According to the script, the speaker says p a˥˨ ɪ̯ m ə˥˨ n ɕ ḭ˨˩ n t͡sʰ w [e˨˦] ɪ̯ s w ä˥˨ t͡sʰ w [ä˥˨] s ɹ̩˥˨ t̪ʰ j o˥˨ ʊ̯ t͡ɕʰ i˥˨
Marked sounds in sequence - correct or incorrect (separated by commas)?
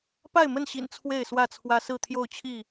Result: incorrect, incorrect